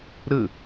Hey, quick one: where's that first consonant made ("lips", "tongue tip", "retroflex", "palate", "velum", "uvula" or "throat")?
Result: tongue tip